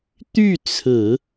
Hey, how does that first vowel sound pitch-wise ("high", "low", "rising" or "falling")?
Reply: falling